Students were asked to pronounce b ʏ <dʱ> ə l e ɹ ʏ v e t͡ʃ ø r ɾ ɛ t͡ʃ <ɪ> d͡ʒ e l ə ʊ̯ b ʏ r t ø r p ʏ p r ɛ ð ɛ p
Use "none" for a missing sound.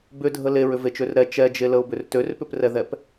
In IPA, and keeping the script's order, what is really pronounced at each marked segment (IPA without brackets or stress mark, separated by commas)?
dʱ, ɛ